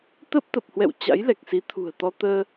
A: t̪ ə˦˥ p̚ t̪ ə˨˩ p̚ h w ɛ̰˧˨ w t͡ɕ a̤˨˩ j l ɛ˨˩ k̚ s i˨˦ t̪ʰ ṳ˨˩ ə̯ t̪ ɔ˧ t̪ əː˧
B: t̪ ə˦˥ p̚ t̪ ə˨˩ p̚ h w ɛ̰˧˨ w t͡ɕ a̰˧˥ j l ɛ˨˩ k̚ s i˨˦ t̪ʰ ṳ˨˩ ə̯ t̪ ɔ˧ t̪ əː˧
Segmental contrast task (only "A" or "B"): B